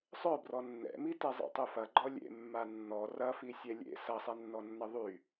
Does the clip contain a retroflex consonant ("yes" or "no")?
no